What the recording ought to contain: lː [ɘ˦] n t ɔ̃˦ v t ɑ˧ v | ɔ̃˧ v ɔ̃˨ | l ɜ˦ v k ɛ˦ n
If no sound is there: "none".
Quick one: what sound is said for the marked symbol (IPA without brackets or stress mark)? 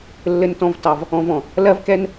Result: ɘ˦